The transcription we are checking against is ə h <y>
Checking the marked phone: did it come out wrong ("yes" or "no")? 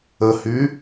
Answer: no